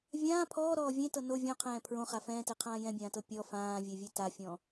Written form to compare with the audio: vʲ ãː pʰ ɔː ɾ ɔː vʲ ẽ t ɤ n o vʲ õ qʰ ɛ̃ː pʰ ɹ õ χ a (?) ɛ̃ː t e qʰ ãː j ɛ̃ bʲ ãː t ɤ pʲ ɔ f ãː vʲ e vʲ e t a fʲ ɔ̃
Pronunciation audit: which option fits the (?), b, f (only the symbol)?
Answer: f